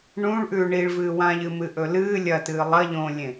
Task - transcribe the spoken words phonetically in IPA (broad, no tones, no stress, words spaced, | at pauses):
ɳũɭʔʉː ɳiɭvɨːwãʎɨ mɨʔɵlɨː lʲɐtɨː lˠɐʎõːlʲẽ